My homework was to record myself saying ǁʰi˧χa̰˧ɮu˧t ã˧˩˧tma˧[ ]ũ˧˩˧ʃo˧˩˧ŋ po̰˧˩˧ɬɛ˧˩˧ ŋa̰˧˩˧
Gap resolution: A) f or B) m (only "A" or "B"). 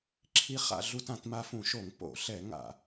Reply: A